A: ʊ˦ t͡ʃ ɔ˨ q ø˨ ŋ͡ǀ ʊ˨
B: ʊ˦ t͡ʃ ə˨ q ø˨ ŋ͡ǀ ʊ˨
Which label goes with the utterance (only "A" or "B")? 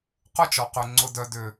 A